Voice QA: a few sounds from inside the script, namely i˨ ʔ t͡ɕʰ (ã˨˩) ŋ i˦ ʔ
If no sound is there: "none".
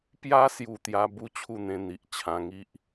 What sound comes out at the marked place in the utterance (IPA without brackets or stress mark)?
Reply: ã˧